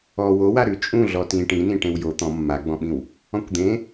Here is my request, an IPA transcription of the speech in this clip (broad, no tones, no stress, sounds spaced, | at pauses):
ɔ w o w a ɾ ʉ t͡ʃʼ ũ ɮ ɔ t ĩ ʈ ĩ n ĩ ʈ ẽ w j o t̪ ɔ̃ mː a ɡ͡b ɔ̃ ɓ ĩ w | ɔ̃ kʷ d̪ ẽ